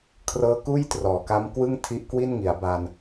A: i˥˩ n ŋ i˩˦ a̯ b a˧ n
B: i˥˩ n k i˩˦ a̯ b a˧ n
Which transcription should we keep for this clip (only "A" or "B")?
A